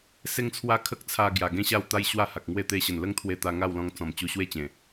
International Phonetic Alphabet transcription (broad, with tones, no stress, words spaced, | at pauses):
se˦ŋt͡sʰwa˦ kʰə˦k̚t͡sʰa˧ ɡja˨˩ɡẽ˥˧ɕa˥˧w t̪a˦j ɕwa˥˧ha˨k̚ŋwe˥˧ t̪e˧ɕə˨˩nlə˦ŋt̪ʰwe˧ t̪a˧ŋa˥˧wlɔ̃˧ŋ t͡sɔ̃˨˩m t͡ɕu˧ɕwe˦t͡ɕẽ˨˩